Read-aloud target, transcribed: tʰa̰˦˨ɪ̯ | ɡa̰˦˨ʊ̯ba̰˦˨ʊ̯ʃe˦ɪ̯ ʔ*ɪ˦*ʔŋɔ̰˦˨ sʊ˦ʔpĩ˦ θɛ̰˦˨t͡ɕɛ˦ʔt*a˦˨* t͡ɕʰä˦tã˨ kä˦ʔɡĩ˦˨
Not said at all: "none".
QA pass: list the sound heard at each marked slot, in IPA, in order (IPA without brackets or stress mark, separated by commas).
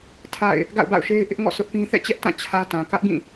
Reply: ɪ˦, ã˦˨